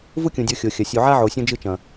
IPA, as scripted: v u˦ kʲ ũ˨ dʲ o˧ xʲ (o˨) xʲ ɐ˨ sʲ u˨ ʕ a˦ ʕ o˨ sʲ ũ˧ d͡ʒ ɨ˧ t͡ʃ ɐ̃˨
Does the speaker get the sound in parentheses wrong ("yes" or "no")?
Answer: no